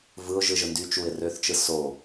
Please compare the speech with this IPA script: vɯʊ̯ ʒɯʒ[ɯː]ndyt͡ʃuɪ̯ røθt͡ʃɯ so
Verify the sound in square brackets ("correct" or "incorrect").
incorrect